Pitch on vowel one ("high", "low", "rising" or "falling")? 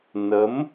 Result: rising